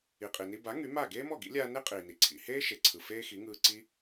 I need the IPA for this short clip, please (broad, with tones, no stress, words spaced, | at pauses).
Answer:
i˩qʼi˩ni˧ ba˩˥ ŋy˩˥ ma˥˩ ɡeː˥mɔ˥˩ɡḭ˩˥ lʲaː˧ne˥ qʼiː˩ni˩ ǀʰḭ˩ heː˥ʃe˩ ǀʰɯ˩feː˥xi˩˥ŋɯː˧ ǀi˧